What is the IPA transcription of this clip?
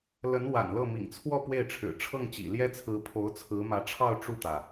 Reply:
l ə˧˥ n w a̰˨˩ n l ɤ˥˩ m ḭ˨˩ ŋ t͡sʰ w ɔ˥˧ p w e˥˩ ɪ̯ ʈ͡ʂʰ ɻ̩˨˩ ʈ͡ʂʰ ɤ˥˩ ŋ t͡ɕ ḭ˨˩ l j ɛ˥ t͡sʰ ɹ̩˧˥ pʰ o˧˥ ʊ̯ t͡sʰ ɹ̩˧˥ m ä˧˥ ʈ͡ʂʰ ɑ˥˧ ʊ̯ ʈ͡ʂ u˥˩ t̪ ä˩

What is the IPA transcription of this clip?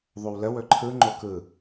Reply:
ðˤ o w l ə w ɵ ǃʰ ɯ ŋ͡ǃ o k ɯ

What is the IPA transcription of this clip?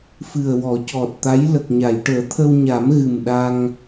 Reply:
f ɨ˨˩ ə̯ w ɔ˨˩˦ c ɔ˨˩ t̚ t̪ a˧˥ j l ə˨˩ k̚ ɲ a˨˩˨ j ʈ əː˨˩˦ t̪ʰ ə˧ w ɲ a˨˩˦ m ɣ ɨ˨˩ m ɗ a˧ ŋ

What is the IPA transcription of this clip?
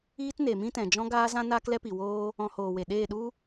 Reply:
iː˦ t n e˨ m ĩ˦ t ɛ̃˨ d͡ʒ ɔ̃˦ ɡ aː˦ z ã˦ n aː˦ k l ɛ˦ p i˨ w oː˦ | ɔ̃˧ h oː˨ w e˨ ɗ eː˦˨ ɗ u˦

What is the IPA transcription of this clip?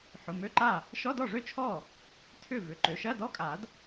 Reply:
ħ ʊ˩˧˩ m ø˧˥˧ ǃ a˥˩ | ʃ ɔ˧˥˧ d ɔ˥˩ ʐ ø˥˩ t͡ʃʰ ɔ˥˩ | tʰ ʏ˥˩ v ʏ˩˧˩ ǃ ø˩˧˩ ʃ ɐ˧˥˧ d ɔ˧˥˧ kʼ a˨˩˦ d

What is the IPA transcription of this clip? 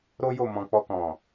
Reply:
ɾ o˦ j o˦˨ m ɔ̃˧ k͡p ɔ˧ k ɔ̃˨

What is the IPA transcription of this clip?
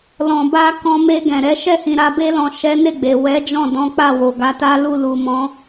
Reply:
l ɔ̃˨ b a˧ k ɔ̃˧ m e˧ ɡ ɛ̃˨ ɾ ɛ˨˦ ʃ ɛ˦˨ h ĩ˨ ɾ a˧ b e˧ l ɔ̃˨ ʃ ɛ˨˦ n e˦˨ ɡ͡b e˨ w ɛ˨˦ d͡ʒ ɔ̃˦˨ d ɔ̃˨˦ k͡p a˦˨ w o˨ ɡ a˧ t a˦ l u˦˨ l u˨ m ɔ̃˨˦

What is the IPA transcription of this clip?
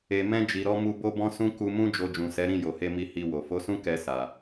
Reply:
e˨ m ɛ̃˧ d͡ʒ i˨ ɾ ɔ˧ m u˧ b o˦ b ɔ̃˦ s ũ˦ k u˧ m ũ˦ d͡ʒ o˧ d͡ʒ ũ˨ s ɛ˨˦ ɾ ĩ˦˨ j o˨ h e˧ m i˧ h i˧ w o˨ f o˨˦ s ũ˦ k ɛ˧ s a˨

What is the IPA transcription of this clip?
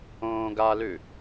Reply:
õː ɡ a l ʉ

